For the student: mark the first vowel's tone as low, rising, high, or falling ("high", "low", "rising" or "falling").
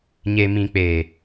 low